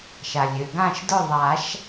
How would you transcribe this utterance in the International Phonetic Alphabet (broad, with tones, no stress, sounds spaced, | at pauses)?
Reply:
ʃ a˩ lʲ ø˩ ɡ ã˥˩ ʃ d ʊ˥˩ ðˤ a˨˩˦ ʃ